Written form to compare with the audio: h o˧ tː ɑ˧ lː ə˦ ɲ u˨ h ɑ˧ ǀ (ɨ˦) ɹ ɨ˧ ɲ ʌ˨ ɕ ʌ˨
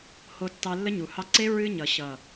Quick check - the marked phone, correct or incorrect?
incorrect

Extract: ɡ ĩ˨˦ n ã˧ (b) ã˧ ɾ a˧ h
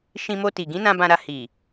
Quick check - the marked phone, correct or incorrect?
correct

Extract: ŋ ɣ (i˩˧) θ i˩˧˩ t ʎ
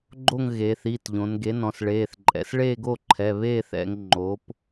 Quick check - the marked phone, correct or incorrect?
incorrect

